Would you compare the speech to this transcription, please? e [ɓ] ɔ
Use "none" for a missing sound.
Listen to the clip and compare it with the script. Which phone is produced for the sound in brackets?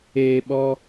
ɓ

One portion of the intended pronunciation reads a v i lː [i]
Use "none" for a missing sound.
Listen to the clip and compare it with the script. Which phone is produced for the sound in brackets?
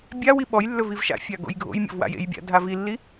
i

